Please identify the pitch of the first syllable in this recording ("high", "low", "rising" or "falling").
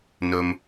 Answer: high